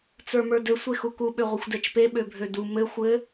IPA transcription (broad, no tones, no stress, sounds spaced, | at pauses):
t͡s ə˞ m ə˞ d ɘ sʷ e x u k u ɓ ø ʁʷ ɘ xʷ d ɛ t͡ʃ p e ɓ ø bʱ ø d u m ɘ xʷ ɘ